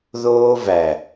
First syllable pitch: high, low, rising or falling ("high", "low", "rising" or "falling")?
high